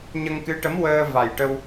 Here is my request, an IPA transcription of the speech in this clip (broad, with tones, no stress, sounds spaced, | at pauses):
ɲ ə˧ ŋ k ɨ˧˥ ʈ ə˧˥ m w əː˧ v a˨˩ j ʈ ə˧ w